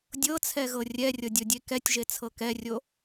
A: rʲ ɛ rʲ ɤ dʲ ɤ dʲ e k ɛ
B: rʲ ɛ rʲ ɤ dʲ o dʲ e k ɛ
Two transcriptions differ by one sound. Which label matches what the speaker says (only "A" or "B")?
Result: B